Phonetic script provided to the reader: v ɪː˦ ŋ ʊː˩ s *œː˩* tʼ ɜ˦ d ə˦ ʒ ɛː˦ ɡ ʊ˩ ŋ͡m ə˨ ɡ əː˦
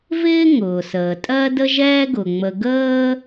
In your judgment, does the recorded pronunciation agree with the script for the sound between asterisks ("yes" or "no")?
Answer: no